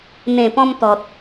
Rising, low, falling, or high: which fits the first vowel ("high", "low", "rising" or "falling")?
low